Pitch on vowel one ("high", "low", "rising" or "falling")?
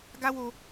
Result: high